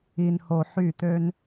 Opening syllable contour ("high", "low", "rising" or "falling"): low